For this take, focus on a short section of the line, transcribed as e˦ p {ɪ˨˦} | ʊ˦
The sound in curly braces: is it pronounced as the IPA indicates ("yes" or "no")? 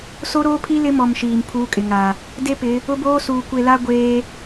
yes